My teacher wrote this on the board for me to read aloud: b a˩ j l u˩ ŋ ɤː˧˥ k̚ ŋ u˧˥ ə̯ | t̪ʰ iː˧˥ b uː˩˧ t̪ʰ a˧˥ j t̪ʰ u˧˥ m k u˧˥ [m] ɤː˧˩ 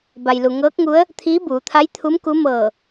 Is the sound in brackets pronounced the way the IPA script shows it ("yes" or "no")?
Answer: yes